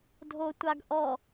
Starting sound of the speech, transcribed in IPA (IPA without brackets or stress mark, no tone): dʱ